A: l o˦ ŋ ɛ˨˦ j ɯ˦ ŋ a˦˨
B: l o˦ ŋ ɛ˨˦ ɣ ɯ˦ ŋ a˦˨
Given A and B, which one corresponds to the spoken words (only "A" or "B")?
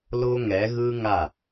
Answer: B